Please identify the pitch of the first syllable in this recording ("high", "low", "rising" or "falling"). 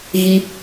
high